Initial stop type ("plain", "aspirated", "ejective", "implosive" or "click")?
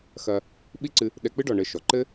implosive